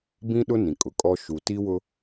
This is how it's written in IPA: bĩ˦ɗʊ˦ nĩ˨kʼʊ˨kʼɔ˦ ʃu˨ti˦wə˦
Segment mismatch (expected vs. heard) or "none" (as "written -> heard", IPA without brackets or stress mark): ə˦ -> ʊ˦